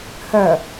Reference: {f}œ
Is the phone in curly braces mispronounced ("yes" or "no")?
yes